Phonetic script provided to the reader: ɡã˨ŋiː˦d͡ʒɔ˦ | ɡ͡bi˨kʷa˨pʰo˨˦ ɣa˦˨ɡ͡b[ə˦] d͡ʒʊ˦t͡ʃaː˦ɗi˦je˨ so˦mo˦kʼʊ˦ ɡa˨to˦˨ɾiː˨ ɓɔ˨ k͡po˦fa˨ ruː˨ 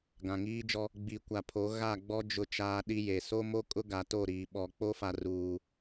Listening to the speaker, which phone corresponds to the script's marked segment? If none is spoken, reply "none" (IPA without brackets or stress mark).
ɔ˦